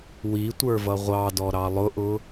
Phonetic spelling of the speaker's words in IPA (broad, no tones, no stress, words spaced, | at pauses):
witʷə˞ vʌʁʷɑdɔ ɾɑlˠʊʔʊ